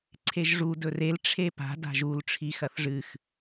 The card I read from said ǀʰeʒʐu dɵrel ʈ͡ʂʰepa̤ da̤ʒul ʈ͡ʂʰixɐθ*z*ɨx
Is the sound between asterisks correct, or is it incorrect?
incorrect